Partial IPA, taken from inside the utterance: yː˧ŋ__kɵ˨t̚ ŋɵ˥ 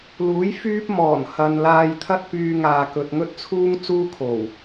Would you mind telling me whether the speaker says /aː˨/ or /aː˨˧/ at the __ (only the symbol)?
aː˨